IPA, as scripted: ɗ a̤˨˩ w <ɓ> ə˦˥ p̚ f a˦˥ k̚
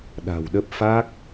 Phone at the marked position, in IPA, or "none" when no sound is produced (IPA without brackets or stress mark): ɗ